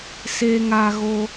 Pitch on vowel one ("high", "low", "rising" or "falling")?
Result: high